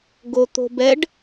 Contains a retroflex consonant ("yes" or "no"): yes